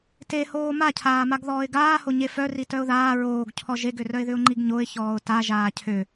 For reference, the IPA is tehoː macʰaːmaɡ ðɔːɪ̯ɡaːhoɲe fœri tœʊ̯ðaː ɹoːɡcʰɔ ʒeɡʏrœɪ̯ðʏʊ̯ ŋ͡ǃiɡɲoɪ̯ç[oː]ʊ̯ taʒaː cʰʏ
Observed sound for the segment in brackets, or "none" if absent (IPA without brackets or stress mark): ɔː